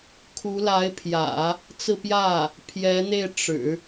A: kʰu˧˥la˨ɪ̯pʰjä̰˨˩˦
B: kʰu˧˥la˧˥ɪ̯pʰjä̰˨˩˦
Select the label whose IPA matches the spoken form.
B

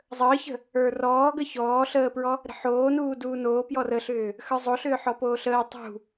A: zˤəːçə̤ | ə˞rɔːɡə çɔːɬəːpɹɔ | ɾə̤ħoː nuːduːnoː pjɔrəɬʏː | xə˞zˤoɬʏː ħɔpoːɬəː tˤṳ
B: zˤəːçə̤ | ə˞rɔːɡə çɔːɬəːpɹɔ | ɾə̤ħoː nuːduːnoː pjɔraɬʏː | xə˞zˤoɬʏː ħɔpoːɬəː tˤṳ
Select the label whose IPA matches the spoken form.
A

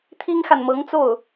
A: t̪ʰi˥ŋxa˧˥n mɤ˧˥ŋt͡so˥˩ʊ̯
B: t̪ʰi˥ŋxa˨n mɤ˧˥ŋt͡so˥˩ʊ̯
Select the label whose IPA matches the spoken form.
B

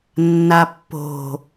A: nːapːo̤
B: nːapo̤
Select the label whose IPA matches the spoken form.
A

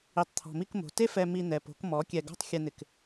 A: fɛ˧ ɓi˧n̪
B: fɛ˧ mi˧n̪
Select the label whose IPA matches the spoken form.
B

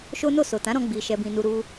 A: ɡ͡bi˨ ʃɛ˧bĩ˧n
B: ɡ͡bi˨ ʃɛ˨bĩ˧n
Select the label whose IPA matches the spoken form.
A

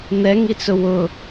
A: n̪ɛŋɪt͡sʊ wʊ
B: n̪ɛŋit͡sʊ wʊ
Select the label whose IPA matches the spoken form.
B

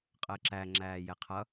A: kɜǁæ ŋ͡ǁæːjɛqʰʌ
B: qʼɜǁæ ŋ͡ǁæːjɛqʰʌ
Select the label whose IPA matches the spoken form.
B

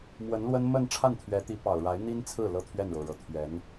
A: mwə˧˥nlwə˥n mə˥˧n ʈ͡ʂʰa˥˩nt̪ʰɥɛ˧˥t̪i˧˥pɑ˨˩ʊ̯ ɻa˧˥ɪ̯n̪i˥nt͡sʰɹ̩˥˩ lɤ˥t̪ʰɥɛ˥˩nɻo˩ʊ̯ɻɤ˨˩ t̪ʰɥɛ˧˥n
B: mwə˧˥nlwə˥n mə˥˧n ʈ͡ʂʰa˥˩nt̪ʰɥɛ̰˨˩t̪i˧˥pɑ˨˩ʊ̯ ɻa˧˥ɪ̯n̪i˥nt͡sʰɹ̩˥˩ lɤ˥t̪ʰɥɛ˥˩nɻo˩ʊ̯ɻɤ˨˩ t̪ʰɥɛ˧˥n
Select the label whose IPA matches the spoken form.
A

